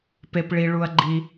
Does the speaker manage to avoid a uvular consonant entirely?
yes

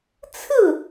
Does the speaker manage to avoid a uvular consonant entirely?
yes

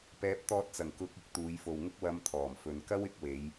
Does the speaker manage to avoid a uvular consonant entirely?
yes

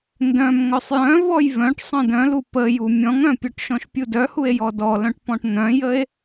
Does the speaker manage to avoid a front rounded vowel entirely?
no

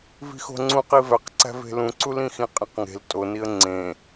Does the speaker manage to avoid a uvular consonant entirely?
no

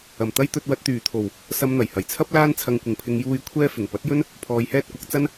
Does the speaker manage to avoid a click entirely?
yes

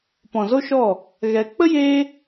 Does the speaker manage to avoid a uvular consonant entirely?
yes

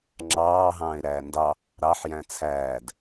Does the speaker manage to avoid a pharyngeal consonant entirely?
no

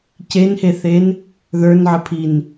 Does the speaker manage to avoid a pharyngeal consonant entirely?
no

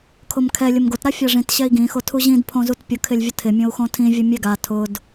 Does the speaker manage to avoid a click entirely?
yes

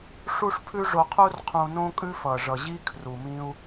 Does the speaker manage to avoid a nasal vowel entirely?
no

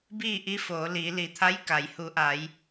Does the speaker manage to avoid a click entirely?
yes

